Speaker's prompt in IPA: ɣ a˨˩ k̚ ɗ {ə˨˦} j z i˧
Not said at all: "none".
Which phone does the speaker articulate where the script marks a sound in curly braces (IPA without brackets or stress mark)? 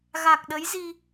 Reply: ə˨˦